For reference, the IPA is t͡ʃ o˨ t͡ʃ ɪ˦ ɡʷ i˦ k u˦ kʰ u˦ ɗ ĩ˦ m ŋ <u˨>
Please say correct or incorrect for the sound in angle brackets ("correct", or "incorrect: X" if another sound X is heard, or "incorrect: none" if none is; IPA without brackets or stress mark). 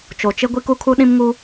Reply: incorrect: u˦